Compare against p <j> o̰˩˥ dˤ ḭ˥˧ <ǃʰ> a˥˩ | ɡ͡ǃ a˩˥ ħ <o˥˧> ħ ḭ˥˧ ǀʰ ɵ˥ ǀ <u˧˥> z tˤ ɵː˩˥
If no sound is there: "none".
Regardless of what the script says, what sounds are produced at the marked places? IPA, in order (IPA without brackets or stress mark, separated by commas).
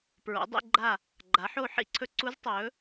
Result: ɹ, ɡ͡ǃ, o˥˧, u˧˥